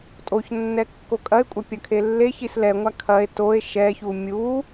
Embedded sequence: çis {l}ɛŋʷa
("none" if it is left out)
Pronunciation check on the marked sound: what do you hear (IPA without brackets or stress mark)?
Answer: l